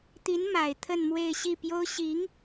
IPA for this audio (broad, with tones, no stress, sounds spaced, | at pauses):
t̪ i˧˥ n m a˨˩ ɪ̯ t̪ʰ ə˥˧ n m w e˥˧ ɪ̯ ɕ i˥˩ p j o˥ ʊ̯ ɕ i˧˥ ŋ